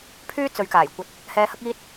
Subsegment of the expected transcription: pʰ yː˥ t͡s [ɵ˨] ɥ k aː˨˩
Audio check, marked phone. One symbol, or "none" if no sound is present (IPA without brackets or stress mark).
ɵ˨˧